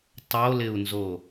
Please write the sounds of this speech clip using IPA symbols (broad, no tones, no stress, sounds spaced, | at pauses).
tˤ o l ɪ u̯ n z o